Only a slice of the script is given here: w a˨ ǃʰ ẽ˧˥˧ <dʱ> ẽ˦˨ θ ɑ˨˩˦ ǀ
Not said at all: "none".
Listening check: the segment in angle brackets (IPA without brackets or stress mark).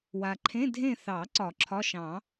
dʱ